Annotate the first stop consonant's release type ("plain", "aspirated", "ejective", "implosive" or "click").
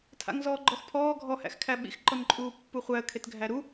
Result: aspirated